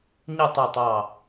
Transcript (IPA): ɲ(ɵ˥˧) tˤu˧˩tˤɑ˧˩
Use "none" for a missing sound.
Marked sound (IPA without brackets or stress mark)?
ə˥˧